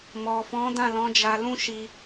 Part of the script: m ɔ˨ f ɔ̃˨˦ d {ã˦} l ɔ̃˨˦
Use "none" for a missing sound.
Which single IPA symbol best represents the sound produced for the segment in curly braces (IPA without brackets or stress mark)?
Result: ã˦˨